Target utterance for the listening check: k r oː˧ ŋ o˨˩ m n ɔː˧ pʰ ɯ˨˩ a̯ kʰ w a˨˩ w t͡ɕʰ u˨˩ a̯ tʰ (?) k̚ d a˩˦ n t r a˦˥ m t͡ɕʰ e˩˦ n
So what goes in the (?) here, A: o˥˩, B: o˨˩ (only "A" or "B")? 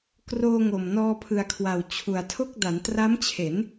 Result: A